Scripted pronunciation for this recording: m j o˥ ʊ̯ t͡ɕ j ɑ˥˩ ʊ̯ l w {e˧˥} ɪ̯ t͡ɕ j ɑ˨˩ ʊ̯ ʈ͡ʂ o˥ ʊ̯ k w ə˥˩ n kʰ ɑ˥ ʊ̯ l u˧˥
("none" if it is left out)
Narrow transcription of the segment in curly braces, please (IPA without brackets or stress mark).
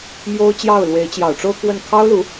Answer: e˧˥